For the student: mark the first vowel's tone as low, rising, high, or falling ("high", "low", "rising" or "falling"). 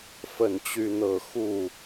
falling